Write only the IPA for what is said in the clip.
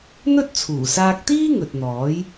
n̪ ɵ˥ t̚ t͡sʰ uː˨˩ s aː˧ k̚ t̪ iː˥ ŋ ɵ˨ t̚ n̪ ɔː˨˥ j

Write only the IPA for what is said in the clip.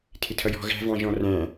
tʰ ɪ tʰ ʌ j ɔ̤ ɣ æ̤ v ɑ̃ ʒ ɔ̃ r æ̃

